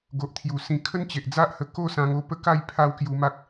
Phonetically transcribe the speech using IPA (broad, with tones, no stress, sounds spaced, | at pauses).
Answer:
ɡ o˨ ʔ t̪ʰ j u˨˩ s ĩ˨˩ kʰ ə˦ n t͡ɕ e˨ ʔ d͡z a˦ ʔ h ə˧ k o˥˧ s ã˧ ŋ o˧ p ə˦ k a˥˧ j pʰ a˦ w k j u˧ m a˦ k̚